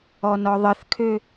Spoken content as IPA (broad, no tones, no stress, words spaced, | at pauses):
ɔnɔðˤəθkʰø